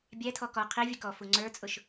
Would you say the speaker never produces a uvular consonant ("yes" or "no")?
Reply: no